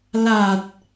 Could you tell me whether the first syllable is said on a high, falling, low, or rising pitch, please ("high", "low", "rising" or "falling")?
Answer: low